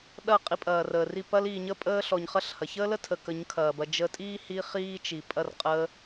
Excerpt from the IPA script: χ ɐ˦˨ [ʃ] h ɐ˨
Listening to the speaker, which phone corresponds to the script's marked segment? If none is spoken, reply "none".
ɬ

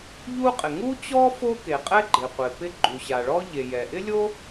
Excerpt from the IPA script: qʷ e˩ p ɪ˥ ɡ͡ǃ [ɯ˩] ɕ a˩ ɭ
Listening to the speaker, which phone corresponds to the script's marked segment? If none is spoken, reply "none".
u˩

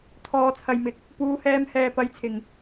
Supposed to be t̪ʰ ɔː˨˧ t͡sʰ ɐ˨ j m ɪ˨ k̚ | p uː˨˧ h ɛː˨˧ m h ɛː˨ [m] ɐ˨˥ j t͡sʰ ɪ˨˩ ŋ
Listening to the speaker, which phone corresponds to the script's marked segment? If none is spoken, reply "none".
p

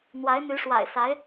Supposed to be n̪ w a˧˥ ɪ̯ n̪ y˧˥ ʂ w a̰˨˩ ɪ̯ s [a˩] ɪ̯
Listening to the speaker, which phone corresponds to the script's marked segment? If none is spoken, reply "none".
a˧˥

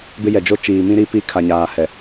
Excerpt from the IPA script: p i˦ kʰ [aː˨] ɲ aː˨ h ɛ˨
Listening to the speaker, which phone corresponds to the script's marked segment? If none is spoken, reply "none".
a˨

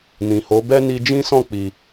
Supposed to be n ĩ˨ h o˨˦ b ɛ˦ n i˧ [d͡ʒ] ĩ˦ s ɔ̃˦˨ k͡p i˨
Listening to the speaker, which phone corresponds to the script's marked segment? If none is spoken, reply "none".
d͡ʒ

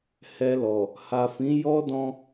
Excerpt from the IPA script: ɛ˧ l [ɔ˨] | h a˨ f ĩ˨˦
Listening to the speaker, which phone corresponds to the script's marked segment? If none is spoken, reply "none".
ɔ˨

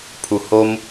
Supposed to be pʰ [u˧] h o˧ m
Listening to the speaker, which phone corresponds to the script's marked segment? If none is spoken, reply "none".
u˨˩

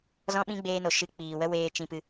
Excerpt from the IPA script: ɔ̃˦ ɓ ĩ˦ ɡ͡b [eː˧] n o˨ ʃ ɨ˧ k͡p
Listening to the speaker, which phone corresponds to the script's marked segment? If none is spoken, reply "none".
eː˧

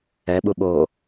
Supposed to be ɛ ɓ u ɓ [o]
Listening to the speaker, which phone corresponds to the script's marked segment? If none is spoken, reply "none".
o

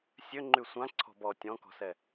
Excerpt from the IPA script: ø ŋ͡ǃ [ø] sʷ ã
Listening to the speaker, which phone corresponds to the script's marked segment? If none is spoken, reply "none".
y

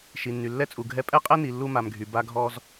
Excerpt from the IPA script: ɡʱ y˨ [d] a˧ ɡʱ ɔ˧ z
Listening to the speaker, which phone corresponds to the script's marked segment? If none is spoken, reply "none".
b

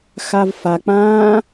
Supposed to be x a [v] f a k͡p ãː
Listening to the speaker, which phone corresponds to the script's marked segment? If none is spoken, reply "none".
v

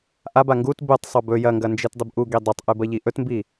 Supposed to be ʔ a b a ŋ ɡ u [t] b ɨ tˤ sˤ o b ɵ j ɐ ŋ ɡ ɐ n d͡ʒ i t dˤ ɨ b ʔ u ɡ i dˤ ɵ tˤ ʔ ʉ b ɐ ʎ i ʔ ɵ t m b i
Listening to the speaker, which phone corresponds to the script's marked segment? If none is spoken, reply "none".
t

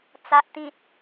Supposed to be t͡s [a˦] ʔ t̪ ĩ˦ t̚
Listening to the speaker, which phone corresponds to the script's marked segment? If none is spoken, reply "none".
a˦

